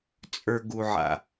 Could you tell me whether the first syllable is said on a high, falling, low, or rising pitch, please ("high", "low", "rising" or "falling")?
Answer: low